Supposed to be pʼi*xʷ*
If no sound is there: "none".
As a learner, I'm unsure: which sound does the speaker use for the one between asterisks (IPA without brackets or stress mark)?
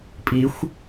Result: xʷ